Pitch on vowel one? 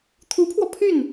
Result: rising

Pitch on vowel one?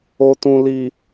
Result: low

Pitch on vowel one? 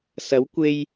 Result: rising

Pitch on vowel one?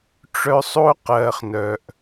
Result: high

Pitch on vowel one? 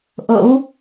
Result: rising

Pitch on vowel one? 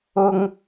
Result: high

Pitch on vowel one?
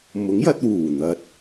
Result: rising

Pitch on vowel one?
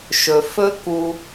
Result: low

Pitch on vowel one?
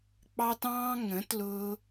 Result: high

